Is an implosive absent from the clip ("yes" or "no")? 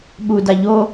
no